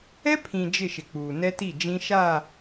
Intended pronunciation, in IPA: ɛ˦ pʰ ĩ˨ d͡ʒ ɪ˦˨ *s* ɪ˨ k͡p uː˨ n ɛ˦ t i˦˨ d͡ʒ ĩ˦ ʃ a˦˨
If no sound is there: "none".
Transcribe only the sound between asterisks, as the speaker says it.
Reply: ʃ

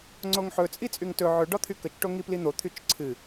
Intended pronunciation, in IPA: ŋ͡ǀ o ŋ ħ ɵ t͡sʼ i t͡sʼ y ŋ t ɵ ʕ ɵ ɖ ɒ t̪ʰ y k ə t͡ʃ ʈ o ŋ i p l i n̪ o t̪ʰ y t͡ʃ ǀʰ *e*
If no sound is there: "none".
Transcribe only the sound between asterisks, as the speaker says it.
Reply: ɨ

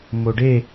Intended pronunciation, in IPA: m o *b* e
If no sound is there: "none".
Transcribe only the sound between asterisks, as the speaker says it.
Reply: ɖ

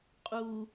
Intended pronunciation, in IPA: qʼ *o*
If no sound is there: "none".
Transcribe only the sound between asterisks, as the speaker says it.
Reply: u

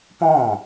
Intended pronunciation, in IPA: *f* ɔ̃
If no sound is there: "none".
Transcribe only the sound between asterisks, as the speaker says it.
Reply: p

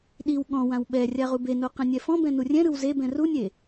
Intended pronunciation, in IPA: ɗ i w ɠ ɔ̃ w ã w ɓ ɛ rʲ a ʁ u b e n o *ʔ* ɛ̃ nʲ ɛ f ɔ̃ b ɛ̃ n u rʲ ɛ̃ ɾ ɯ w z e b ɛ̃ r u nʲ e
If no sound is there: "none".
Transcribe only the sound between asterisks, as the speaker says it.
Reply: q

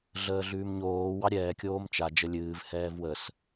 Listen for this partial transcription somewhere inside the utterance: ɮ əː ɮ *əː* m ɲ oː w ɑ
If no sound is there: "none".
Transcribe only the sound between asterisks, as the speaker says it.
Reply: ʉː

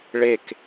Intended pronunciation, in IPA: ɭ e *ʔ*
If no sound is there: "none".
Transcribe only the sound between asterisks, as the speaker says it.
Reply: k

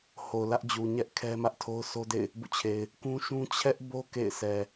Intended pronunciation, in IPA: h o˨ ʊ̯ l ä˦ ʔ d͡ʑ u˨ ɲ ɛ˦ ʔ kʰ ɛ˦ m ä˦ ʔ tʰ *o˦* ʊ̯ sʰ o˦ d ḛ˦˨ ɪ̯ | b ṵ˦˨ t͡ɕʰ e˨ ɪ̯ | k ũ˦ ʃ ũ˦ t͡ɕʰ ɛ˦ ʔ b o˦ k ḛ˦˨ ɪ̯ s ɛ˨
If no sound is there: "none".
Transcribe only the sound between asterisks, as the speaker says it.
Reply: o˦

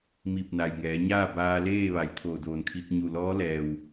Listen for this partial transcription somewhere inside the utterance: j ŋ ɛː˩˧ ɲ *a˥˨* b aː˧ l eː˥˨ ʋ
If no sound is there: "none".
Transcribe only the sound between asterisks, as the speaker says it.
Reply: aː˥˨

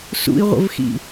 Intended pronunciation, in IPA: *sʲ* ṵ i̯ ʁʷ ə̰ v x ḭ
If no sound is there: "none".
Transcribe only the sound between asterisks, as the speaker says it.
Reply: s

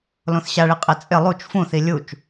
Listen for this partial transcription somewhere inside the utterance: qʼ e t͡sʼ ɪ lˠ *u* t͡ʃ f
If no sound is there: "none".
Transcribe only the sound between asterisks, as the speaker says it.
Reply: u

